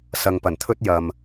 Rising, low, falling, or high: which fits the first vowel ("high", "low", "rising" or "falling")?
low